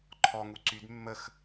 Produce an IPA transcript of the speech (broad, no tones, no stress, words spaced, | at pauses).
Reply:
ǃʰɔŋu ǀyd mːəx